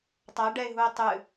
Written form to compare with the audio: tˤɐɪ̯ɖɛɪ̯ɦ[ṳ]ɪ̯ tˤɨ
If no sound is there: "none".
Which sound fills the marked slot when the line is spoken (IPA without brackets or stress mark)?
u